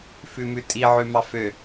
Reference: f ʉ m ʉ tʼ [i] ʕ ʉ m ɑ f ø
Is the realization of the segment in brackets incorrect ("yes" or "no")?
no